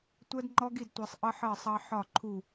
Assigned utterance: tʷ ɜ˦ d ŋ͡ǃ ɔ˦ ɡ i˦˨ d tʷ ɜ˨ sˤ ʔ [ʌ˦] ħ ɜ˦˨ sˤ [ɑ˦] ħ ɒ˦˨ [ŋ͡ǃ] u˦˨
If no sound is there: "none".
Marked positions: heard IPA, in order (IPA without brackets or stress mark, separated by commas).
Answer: ʌ˦, ɑ˦, ǃʰ